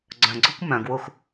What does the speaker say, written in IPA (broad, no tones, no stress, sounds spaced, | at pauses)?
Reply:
ɡ͡ǀ œ̃ ɡ͡ǀ o kʷ m œ̃ ɡ w u x